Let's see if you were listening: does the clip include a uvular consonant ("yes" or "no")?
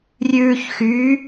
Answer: no